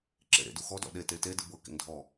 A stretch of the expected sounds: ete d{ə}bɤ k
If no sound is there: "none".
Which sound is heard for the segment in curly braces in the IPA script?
ɯ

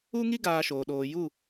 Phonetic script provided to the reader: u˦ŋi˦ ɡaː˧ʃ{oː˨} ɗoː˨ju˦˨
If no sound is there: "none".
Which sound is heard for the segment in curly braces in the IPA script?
oː˨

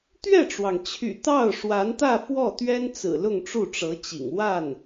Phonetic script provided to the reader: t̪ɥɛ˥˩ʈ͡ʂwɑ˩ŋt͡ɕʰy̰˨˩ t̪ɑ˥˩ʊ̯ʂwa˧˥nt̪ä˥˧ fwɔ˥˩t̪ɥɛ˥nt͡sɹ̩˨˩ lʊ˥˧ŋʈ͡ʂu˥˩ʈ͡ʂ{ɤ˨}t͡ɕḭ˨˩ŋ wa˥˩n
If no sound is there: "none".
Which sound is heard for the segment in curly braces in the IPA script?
ɤ˧˥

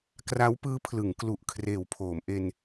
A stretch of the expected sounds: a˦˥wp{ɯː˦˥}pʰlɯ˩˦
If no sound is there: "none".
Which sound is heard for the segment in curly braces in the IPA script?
ɯː˦˥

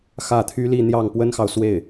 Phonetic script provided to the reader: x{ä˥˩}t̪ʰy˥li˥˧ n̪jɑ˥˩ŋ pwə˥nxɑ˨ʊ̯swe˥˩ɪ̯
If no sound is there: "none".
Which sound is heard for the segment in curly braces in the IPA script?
ä˥˩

